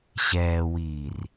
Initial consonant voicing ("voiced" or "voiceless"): voiceless